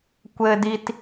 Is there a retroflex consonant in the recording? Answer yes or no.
no